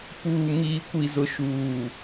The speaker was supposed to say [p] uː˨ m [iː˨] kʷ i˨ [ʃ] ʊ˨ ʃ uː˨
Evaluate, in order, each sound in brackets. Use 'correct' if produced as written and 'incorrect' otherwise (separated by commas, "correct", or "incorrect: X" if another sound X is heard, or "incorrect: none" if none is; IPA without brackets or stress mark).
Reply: correct, correct, incorrect: z